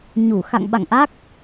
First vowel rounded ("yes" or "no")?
yes